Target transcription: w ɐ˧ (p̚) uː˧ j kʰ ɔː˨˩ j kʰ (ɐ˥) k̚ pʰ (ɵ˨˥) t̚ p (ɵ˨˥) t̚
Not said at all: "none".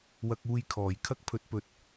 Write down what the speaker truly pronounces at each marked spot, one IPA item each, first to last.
k̚, ɐ˥, ɵ˨˥, ɵ˨

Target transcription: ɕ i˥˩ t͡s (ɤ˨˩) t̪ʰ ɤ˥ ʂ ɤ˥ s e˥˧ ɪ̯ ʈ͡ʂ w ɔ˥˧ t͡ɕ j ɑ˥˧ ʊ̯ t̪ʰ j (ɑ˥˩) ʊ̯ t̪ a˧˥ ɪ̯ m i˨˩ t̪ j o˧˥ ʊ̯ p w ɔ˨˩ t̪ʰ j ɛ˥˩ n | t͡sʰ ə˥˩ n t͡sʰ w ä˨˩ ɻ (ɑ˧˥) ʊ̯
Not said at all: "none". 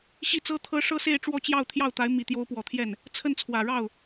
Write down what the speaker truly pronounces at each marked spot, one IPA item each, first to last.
ɤ˥, ɑ˥˩, ɑ˥˩

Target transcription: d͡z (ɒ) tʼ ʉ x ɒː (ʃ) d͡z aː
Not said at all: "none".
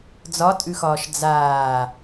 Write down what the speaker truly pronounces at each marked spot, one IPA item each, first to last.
ɒ, ʃ

